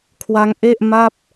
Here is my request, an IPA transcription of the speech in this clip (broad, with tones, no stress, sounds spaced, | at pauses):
kʰ w a˦˥ ŋ ʔ e˥˩ ʔ m a˥˩ p̚